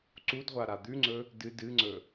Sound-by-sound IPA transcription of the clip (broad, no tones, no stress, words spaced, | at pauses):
ǀudʁʷa ɾad̪ʉŋ͡ǀɵ | dɨ dɨŋ͡ǀɵ